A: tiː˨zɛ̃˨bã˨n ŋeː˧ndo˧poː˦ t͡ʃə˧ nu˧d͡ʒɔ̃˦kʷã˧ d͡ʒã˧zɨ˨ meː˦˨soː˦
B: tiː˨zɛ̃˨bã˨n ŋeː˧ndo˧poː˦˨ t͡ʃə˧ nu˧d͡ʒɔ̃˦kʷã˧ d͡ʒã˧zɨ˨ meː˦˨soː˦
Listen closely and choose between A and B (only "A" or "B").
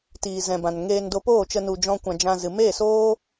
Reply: B